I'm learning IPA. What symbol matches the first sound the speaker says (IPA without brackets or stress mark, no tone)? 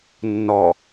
nː